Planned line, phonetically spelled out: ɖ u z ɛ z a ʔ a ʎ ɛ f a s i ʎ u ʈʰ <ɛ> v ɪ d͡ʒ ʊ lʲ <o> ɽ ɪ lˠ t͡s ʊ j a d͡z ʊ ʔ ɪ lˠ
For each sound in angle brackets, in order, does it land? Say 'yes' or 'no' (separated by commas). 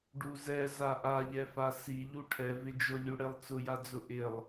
yes, no